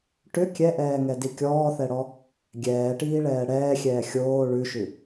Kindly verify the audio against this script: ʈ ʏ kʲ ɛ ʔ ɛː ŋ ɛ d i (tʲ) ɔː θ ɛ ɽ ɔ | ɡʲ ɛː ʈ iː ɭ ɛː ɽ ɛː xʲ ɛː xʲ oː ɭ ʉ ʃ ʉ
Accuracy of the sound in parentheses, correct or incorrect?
incorrect: kʲ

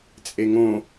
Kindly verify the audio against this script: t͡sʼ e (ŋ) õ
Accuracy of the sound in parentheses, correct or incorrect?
correct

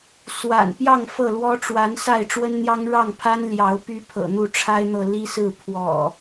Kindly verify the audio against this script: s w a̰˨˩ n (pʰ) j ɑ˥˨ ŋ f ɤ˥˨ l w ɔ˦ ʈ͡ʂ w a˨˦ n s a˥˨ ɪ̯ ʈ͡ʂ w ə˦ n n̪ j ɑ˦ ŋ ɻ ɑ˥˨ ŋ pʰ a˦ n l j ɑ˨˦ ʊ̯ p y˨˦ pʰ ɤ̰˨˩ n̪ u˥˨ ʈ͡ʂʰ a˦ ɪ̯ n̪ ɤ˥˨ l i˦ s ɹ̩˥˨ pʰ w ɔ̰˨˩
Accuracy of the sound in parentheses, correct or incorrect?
incorrect: p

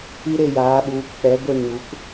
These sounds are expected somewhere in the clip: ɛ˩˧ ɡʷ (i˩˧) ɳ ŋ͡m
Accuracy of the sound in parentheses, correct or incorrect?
incorrect: i˧˩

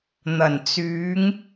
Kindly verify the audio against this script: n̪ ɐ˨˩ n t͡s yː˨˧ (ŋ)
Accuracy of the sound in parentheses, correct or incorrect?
correct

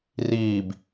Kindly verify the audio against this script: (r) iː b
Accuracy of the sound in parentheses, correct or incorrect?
correct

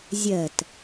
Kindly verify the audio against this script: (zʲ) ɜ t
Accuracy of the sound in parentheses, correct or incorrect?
correct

